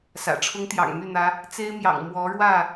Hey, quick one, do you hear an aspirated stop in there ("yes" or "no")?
yes